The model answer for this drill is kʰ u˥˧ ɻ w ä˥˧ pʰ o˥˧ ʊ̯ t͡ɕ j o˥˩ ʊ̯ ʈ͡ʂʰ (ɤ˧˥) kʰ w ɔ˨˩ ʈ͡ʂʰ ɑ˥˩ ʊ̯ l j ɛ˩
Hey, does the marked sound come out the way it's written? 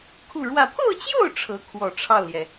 yes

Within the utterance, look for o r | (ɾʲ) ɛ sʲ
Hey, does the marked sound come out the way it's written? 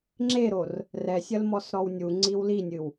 no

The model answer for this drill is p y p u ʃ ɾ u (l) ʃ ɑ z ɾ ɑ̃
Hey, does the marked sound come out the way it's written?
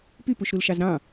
yes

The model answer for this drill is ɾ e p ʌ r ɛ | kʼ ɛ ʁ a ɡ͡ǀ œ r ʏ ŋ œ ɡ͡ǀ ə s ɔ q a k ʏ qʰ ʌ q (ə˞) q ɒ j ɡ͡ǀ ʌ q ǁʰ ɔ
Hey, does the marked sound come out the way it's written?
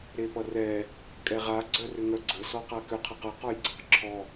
no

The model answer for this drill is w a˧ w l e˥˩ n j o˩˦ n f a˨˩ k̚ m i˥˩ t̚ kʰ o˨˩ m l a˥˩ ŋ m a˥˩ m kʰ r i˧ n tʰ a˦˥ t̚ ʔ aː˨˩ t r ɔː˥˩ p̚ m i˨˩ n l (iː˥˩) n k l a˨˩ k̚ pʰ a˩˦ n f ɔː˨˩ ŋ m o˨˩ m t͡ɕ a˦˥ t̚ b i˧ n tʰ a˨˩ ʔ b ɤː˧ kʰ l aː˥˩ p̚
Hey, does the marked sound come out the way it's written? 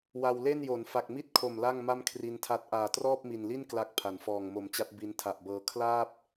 no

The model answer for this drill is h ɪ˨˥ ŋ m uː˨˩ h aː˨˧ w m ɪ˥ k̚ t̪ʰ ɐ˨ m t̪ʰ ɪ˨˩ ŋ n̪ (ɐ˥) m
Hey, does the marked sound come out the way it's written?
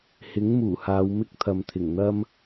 yes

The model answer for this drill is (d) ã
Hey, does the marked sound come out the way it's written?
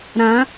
no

